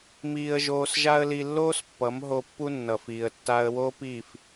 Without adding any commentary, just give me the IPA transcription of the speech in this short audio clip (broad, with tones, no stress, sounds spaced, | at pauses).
m iː˧ ə̯ ʒ oː˧ s ʒ a˦ ə̯ l i˧ lː oː˦ s pː ʌ˨˦ m ɦ o˧ pː u˦ nː ʌ˨ f iː˨ ə̯ tː a˧ ə̯ w o˦ p iː˦˨ f